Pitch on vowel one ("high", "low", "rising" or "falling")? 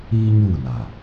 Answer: high